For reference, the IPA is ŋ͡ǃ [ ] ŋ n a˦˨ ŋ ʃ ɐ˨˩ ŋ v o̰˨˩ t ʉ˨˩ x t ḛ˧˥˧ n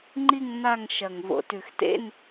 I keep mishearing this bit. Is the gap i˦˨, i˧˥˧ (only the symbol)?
i˦˨